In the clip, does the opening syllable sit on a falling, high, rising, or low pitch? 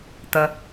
low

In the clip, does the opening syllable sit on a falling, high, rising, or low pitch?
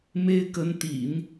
high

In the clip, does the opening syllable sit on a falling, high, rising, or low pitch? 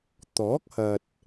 rising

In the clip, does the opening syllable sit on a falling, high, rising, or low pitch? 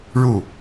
falling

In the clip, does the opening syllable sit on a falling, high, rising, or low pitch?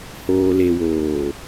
low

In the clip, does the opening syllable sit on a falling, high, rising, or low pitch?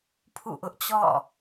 falling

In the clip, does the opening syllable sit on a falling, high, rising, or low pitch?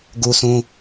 high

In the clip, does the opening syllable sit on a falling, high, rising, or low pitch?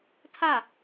falling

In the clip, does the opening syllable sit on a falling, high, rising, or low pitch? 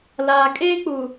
low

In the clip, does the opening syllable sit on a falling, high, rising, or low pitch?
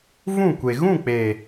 falling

